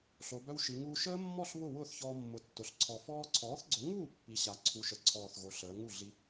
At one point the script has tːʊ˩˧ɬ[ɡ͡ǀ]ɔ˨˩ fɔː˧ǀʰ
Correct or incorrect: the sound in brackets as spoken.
incorrect: ǀʰ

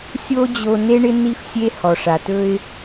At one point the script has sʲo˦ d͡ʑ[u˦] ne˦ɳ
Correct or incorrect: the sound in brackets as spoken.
incorrect: o˦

